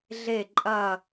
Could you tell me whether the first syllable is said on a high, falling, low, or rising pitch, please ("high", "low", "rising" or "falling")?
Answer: falling